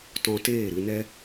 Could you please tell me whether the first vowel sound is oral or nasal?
nasal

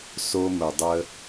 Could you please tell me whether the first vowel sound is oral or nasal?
oral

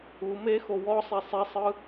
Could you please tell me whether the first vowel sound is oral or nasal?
oral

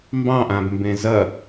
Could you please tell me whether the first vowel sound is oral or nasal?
nasal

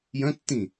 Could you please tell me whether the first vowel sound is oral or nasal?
nasal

